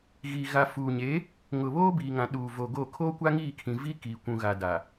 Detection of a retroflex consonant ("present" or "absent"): absent